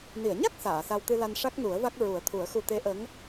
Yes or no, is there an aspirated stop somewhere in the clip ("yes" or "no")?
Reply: yes